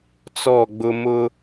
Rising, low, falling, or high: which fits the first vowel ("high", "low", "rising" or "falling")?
falling